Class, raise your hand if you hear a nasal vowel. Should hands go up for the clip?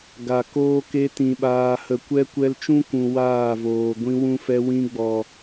yes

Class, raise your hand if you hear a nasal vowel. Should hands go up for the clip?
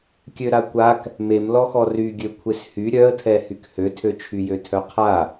no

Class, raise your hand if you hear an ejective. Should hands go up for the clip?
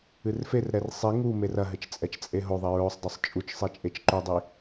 yes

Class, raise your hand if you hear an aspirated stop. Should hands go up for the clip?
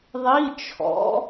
yes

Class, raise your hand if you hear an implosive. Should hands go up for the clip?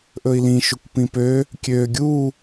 no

